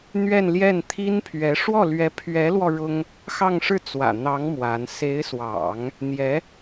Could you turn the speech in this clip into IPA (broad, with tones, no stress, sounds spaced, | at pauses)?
n̪ ɥ ɛ˥˧ n l j ɛ˥˩ n t̪ʰ i˥ n pʰ ɥ ɛ˧˥ ʂ w ɔ˥˩ l ɥ ɛ˧˥ pʰ ɥ ɛ˧˥ l w ɔ˧ ɻ ʊ˥ ŋ | x ɑ˥˧ ŋ ʂ ɻ̩˥˩ t͡s w ä̰˨˩ n̪ ɑ˧˥ ŋ m w a˧˥ n s e˧˥ ɪ̯ s w ɑ̰˨˩˦ ŋ | n̪ j ɛ˧˥